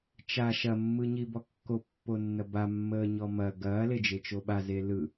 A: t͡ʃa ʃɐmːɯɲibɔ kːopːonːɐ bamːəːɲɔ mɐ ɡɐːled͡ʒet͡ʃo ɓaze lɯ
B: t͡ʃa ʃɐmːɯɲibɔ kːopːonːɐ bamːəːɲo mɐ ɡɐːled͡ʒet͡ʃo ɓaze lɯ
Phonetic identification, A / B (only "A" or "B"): A